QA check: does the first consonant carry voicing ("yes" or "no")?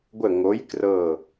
yes